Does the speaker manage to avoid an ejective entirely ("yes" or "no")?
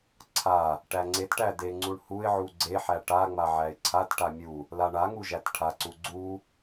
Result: yes